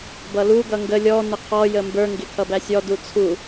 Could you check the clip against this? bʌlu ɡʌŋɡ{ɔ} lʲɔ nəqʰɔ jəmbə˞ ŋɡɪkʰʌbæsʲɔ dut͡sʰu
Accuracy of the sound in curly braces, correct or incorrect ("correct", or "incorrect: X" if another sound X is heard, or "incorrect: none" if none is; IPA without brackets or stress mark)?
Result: incorrect: ə